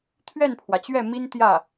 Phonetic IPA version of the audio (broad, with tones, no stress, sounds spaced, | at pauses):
t̪ʰ ɥ ɛ˥˩ n pʰ w ä˩ t͡ɕ ɥ ɛ˥˩ m i˥ n t̪ j ä˥˩